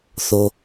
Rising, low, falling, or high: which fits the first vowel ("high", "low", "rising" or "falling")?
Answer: high